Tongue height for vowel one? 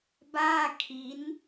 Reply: low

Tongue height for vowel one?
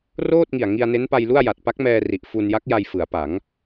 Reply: mid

